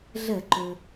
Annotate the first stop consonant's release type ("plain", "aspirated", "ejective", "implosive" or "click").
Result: click